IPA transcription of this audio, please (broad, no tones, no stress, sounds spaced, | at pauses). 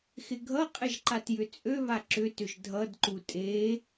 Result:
x ɪ ɡʱ ʌ qʼ ɪ ʒ ǃ a t j ʏ t͡sʼ ø β a ǁ ʏ t ʏ ʒ dʱ ʌ d ǃ u tʼ e